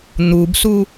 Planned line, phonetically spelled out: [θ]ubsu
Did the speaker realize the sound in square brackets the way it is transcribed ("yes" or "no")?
no